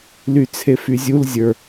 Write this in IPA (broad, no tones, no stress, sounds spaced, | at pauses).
l y t͡sʰ e f y zʲ u l zʲ ə˞